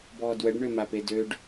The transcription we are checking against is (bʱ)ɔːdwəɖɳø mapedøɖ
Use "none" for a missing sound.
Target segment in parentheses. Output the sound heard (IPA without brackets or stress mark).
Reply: b